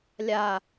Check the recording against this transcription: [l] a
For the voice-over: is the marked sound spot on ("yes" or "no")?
no